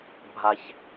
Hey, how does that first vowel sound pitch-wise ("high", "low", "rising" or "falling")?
high